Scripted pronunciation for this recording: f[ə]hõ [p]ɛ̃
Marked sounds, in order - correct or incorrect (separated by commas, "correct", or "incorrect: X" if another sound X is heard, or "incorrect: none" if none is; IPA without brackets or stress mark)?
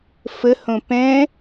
correct, correct